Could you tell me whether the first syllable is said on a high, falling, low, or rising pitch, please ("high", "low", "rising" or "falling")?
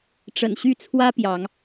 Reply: low